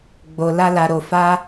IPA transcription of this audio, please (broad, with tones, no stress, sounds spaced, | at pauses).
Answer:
ɡ͡b o˧ l a˦ l a˧ ɾ o˧ f a˦